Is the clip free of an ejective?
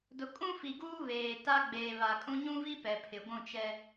no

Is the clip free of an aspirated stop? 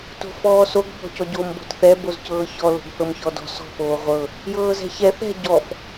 yes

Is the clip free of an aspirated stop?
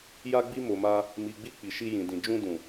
yes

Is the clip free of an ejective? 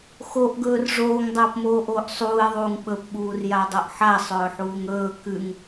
yes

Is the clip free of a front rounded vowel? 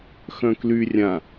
no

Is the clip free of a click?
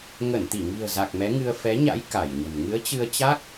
yes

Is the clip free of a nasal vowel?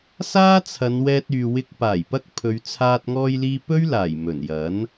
yes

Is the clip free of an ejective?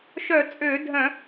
no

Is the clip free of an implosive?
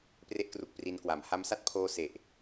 yes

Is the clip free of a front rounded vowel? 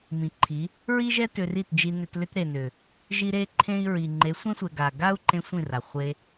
no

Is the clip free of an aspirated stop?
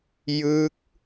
yes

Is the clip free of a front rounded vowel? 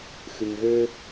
no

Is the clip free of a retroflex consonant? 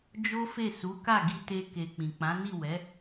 yes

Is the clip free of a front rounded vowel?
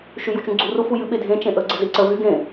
no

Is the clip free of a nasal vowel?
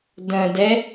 no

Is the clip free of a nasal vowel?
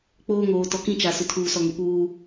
no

